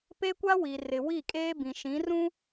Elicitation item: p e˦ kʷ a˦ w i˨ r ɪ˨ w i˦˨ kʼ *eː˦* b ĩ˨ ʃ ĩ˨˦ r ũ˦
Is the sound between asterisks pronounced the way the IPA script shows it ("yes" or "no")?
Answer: yes